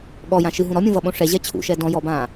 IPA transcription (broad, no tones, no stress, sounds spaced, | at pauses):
ɠ ɔ j ã ʃ ɨ ɦ ũ ɾ ɔ mʲ ũ v ʌ ɓ õ ʂ ɛ ʑ ɛ t͡ɕʰ ṵ ʃ ɛ d ɔ̃ j ɔ b ãː